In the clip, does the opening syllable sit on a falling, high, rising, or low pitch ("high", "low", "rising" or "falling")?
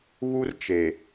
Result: high